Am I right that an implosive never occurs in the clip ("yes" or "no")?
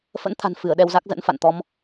no